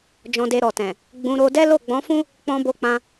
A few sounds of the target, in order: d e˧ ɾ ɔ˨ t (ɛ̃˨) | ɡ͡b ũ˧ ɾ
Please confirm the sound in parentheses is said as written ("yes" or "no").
yes